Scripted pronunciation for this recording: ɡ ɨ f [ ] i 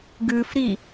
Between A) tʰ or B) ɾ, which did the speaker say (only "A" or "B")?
B